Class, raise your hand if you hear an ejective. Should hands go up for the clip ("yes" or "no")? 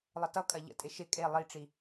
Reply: yes